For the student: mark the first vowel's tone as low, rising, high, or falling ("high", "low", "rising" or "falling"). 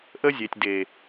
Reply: high